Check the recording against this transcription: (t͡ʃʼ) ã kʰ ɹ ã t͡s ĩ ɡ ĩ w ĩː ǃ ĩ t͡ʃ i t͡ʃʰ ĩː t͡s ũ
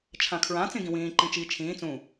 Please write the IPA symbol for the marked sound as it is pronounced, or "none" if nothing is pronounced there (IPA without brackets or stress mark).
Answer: t͡ʃʰ